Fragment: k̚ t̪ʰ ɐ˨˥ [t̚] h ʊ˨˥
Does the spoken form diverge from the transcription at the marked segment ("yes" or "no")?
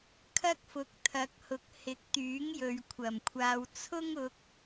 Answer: yes